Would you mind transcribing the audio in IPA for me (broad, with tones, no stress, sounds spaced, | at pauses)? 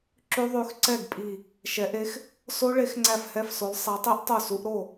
ǁ ʉ˦˥ ðˤ ʉ˨˥ x ǀ ɛ˥˩ ɡ pʼ i˧˩ | ʃ ɛ˨˥ ʔ e˦˥ x | s o˦˥ ɭ e˨˥ x ŋ͡ǀ æ˥˩ f h ɛ˥˩ f s o˨˥ lˠ sˤ æ˨˥ tˤ i˦˥ ʔ tˤ o˥˩ s u˨˥ ʔ ɾ o˥˩